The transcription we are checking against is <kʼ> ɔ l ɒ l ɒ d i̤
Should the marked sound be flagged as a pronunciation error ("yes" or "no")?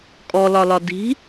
no